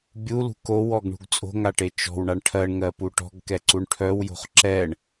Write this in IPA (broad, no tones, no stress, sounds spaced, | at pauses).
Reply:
bʲ u l ṳ k o w ɔ ɡ ɳ ṳ ɡ t͡sʼ o̤ ŋ a ʈ e t͡ʃ ɔ̤ w ɳ a ɳ ʈʰ ɜ ɳ ŋ ɜ p u ʈ ɔ̤ ɡ k ɛ ǀ u ɳ ʈʰ œ w j o̤ χ ǁ ɛ ɳ